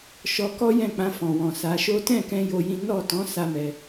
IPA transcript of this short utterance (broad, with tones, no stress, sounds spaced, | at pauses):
ʃ ɔ˧ k ɔ˦ j ɛ̃˦˨ k͡p ã˧ f ɔ̃˨ w ɔ̃˨ s a˨˦ ʃ o˦ t ɛ̃˦˨ k ɛ̃˧ j o˧ j ĩ˦ n ɔ˦˨ t ɔ̃˨˦ s a˦ m ɛ˧